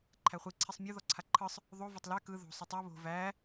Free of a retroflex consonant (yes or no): yes